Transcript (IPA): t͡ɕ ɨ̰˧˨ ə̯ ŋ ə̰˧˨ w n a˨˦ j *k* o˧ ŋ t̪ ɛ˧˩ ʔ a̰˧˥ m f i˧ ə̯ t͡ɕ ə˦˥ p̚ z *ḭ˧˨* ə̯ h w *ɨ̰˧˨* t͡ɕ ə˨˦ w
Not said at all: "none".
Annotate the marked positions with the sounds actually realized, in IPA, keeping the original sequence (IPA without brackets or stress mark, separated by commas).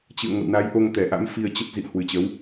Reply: ʔ, ḭ˧˨, ɨ˨˩